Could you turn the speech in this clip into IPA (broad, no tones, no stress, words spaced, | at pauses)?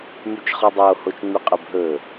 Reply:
myt͡ʃχɔdˤo hot͡ʃŋ͡myqʼɵb ɦɵ